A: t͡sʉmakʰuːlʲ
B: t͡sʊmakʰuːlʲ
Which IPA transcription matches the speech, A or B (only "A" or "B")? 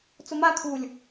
B